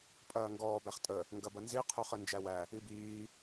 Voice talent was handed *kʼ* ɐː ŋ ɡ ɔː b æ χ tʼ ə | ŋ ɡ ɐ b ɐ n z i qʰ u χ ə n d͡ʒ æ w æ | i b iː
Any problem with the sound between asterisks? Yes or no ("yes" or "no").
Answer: yes